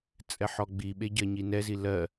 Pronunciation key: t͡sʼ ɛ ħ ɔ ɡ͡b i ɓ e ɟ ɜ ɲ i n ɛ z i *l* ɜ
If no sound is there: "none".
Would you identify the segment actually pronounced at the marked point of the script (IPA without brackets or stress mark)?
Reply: l